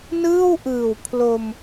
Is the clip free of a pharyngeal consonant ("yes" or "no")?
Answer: yes